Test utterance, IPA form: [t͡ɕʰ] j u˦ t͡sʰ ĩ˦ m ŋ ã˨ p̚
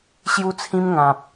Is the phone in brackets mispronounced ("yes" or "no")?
yes